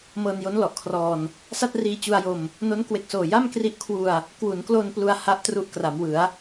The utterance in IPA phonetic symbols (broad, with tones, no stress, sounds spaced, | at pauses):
m ɤː˧ n j o˦˥ n l ɔ˨˩ ʔ kʰ r ɔː˧ n | s a˥˩ t̚ r iː˧ t͡ɕ u˧ a̯ j o˧ m | n o˦˥ n k w e˨˩ k̚ s oː˨˩ j a˥˩ m k r i˦˥ ʔ kʰ w u˧ a̯ | k w u˩˦ n k l o˧ n p l u˧ a̯ h a˥˩ ʔ t r u˥˩ ʔ k r a˩˦ m w ɯ˩˦ a̯